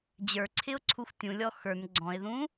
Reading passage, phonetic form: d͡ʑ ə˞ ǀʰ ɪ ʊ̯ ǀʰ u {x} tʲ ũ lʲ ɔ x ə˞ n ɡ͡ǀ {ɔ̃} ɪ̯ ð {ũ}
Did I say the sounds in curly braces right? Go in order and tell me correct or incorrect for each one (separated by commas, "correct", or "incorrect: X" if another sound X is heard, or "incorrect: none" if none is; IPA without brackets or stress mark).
correct, correct, correct